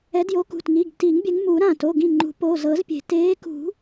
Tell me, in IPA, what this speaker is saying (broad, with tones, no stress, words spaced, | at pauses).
ɛ˨˦djo˨˦kṳ˩˧˩tŋi˩˧˩ɡ ti˨˩˦ŋbʲɛ˨˦ŋmu˨˩˦ ɾã˧˩ to˩˧˩ɡĩ˧˩ŋ͡ǃṳ˨˩˦ po˩˧˩ zɤ˨˩˦zpʲe̤˨˩˦ teː˨˦kṳ˨˩˦